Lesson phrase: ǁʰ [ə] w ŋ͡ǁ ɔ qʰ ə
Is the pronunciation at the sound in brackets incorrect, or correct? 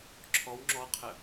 incorrect